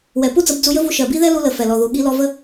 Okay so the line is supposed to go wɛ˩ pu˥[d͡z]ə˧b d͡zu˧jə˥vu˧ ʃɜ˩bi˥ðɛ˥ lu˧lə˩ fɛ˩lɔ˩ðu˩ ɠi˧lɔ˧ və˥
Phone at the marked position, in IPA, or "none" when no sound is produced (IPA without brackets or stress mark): d͡z